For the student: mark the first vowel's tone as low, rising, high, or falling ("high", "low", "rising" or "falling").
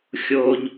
low